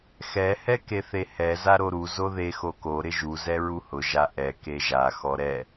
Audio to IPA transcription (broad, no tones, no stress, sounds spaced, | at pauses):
x ɛ h ɛ k e θ e h ɛ z a ɾ o ɾ u z o ð e x o k o ɾ ɪ ʒ u z ɛ ɹ u h ʊ ʒ a ʔ ɛ k e ʒ a x ɔ ɾ ɛ